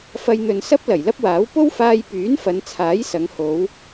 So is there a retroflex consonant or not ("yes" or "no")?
no